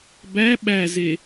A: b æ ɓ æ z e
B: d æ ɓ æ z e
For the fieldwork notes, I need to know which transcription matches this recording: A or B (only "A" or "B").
A